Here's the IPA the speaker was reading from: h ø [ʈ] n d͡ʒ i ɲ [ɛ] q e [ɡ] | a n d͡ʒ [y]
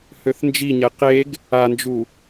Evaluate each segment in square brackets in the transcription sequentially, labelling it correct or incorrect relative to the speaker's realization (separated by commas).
incorrect, correct, correct, incorrect